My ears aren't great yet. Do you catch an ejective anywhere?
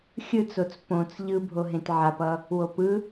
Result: no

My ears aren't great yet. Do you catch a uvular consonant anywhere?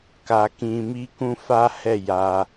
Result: no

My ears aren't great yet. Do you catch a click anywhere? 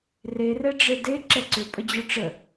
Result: yes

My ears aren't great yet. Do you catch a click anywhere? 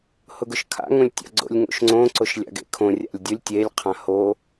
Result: yes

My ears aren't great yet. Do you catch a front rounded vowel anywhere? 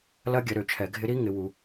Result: yes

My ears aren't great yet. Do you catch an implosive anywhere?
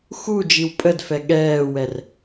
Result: yes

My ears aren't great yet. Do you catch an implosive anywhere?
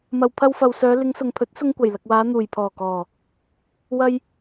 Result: no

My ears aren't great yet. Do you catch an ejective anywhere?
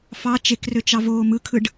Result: no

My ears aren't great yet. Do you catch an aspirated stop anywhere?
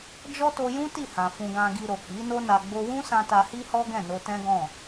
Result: no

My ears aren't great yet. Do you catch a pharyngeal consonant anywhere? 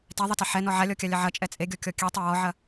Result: yes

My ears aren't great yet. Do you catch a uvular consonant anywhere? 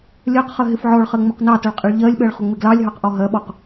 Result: yes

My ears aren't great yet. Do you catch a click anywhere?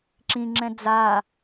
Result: yes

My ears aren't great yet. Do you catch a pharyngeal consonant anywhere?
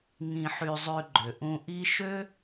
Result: yes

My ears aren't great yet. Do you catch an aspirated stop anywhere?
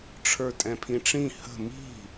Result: yes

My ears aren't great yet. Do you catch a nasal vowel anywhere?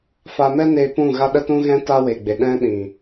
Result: yes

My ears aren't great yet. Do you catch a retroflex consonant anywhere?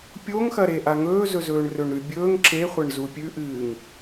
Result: yes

